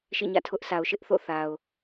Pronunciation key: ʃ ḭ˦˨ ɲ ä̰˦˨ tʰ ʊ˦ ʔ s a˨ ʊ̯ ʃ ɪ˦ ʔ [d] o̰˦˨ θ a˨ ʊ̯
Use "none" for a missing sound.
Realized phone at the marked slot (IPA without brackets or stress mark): θ